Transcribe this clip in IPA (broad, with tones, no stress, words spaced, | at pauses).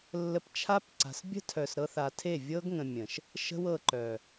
lːə˧pt͡ʃʰa˦pǀa̤˨s bʲə̤˦tʰœ˨sɾɤ˧θa˨ tʰe˦˨vʲɤ˦ɡŋə̃˨ mʲə̃˨ʃ | ʃə̤˦wɤ˧ ǃœ˨